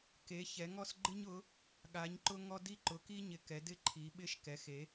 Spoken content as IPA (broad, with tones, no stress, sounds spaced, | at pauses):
k e˨˥ ç ɛ˨˥ ŋ ɔ˥ s ɡ͡ǃ ɪ˥ ɲ ʊ˨˥ | ɠ a˨˥ ɲ ǃ ʊ˥ ŋ ɔ˥ d i˥ ǃ ʊ˨˥ k i˥ ɲ ɪ˨˥ k ɛ˨˥ d ɪ˥ ǃʰ i˨˥ ɓ ɪ˥ ʃ k ɛ˨˥ x e˨˥